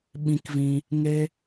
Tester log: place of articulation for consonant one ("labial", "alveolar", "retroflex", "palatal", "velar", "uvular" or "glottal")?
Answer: labial